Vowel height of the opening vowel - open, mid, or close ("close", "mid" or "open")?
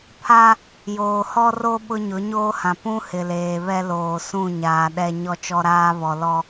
open